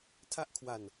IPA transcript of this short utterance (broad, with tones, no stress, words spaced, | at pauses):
tʰa˥˩ʔkʰwa˧n